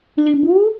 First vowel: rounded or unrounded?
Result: unrounded